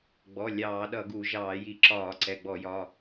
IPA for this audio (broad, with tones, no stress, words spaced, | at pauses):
ɡ͡bɔ˩˧˩ lʲɑː˧˩˧ɗʌ˧˩˧ɡu˧˩˧ ʒɑː˧˩˧ji˧˩˧ ǁɒː˧˩˧ǀɛ˩˧˩ɡ͡bɔ˧˩˧jɒ˩˧˩